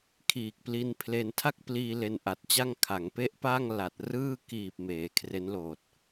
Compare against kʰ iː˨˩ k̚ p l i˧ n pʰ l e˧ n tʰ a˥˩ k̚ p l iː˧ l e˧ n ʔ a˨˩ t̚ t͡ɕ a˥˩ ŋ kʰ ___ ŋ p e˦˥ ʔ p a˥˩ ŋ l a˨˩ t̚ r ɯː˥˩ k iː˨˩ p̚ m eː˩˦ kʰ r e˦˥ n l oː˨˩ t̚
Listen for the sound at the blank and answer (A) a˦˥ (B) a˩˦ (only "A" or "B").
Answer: B